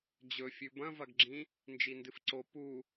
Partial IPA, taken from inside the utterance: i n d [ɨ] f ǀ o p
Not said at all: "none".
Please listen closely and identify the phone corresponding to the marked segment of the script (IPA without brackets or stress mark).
ɨ